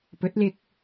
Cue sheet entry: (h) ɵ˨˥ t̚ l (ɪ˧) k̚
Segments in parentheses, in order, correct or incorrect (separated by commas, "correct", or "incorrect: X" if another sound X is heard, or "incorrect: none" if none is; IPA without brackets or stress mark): incorrect: p, correct